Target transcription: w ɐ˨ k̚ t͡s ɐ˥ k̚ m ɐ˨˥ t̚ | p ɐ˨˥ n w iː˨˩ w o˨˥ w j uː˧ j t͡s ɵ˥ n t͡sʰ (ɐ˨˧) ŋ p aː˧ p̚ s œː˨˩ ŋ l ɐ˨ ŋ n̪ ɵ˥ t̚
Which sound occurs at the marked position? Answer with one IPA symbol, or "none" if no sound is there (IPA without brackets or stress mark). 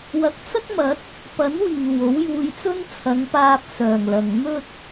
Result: ɐ˨˧